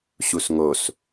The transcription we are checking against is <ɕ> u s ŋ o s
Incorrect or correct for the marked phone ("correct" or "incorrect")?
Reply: correct